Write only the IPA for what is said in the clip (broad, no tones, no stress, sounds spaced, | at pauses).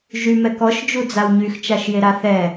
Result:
ʒ y m ɛ k ɔ ʃ d͡ʒ u d͡z a w ɲ y x t͡ʃ a ʃ j e ɾ a θ ɛ